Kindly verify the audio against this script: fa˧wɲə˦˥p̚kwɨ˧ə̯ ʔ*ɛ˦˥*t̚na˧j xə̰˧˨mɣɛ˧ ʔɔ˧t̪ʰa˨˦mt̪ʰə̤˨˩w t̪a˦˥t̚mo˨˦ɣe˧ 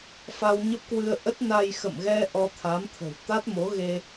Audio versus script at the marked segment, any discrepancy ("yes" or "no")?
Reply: yes